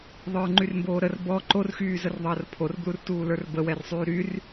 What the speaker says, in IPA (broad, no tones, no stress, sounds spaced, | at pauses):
ðˤ ə˞ ŋ͡ǃ y r m b oː ɾ ə r b ɔ ǃ o r x yː z ə r ðˤ əː r pʰ o r b l u r t uː l ə˞ r b ə w ɛ r sˤ yː ɾ y r